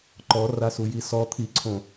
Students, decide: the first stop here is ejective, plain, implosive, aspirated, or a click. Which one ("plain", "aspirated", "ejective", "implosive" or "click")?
click